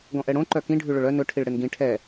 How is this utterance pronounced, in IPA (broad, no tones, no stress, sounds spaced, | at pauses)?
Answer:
ɡ ɔ̃ ʔ ɛ ɽ õ ǃ œ k ĩ ɖʱ ʉ ɭ ɵ ɭ œ n ɵ ʈʰ i ɭ ɽ e n ɡ ĩ ʈʰ ɛ